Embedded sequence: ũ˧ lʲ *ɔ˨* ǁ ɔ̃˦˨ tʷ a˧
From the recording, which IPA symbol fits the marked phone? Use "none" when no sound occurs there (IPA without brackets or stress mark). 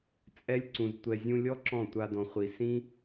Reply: ɔ˦